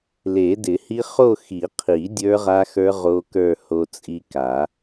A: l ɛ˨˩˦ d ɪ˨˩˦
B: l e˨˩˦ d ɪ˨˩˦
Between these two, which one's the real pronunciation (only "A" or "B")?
B